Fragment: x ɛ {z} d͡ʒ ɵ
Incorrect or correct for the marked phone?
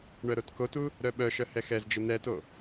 correct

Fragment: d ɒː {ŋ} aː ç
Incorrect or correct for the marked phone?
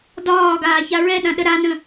incorrect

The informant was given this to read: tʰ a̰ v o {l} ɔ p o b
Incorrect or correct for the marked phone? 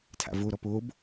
incorrect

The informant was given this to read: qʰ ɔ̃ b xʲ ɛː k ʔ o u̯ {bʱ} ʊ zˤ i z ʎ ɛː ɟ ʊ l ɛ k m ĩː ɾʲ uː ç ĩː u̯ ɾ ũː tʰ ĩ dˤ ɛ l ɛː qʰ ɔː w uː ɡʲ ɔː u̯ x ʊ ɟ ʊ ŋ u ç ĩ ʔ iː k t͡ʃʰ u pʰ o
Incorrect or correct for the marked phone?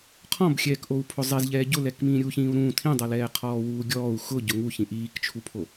incorrect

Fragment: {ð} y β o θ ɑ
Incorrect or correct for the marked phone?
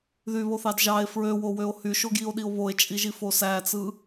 correct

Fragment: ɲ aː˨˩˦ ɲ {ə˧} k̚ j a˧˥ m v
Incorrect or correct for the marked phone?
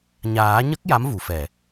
incorrect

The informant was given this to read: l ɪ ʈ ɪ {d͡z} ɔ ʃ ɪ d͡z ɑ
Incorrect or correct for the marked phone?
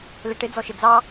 correct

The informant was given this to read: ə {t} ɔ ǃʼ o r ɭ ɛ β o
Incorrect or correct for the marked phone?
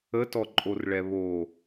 correct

